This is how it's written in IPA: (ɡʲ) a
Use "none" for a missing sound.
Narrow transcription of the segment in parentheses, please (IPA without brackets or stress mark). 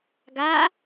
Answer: ɡ